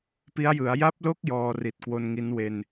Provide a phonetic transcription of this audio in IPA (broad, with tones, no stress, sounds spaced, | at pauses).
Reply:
p i˦˥ a̯ j ɯ˩˦ a̯ j a˦˥ p̚ l o˦˥ k̚ j ɔː˧ r i˨˩ t̚ k w o˧ n ŋ i˦˥ n w e˧ n